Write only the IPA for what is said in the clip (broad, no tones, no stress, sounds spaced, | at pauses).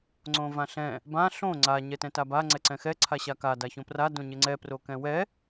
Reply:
ŋ͡ǀ õ v ã ɬ ɛ̃ | b ã ɬ õ ŋ͡ǀ a ɲ ɛ t ɛ̃ t a b a ŋ͡ǀ ɛ ǀ ɛ̃ x ɛ ǀʰ a ɕ a k a d a ç õ p r a d õ ɲ ɪ ŋ͡ǀ ɛ p r o k ɛ̃ w ɛ